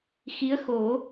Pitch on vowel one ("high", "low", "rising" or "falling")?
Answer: rising